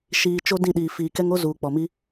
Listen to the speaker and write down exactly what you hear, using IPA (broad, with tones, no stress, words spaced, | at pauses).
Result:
ʃiː˨ t͡ʃo˦dĩ˦˨ɗiː˨ fiː˨kɛ˦ŋ o˦zuː˨ k͡pɔ˨mi˦